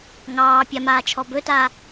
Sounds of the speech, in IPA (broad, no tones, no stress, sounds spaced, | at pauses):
ŋ ɑː pʲ a m aː t͡ʃʰ ɔ b ɵ t aː